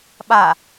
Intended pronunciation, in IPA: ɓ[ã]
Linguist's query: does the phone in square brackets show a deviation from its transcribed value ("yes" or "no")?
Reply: yes